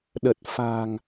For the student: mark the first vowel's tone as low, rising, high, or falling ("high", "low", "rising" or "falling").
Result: low